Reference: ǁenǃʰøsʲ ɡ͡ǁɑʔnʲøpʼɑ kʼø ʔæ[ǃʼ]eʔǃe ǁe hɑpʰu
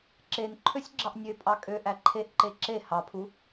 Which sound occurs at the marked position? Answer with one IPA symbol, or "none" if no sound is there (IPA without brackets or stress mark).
ǃʰ